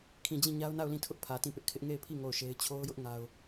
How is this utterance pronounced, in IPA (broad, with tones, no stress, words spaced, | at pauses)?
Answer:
kʰĩ˨d͡ʑĩ˦˨ ɲa˦ʊ̯na˦˨ʊ̯lĩ˦˨tʰʊ˦ʔ pʰä˨tĩ˦˨pɪ˦ʔkʰɪ˦ʔ ŋe˦˨ɪ̯pʰi˦˨ ŋo˦˨ʊ̯ʃe˦ɪ̯ t͡ɕʰo˦ʊ̯jʊ˦ʔ ŋa˦ʊ̯